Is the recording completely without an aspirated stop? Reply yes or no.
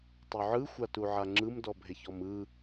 yes